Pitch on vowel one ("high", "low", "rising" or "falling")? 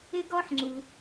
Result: high